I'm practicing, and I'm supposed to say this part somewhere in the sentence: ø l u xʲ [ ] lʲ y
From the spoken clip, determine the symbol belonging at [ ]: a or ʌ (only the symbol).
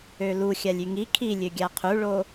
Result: a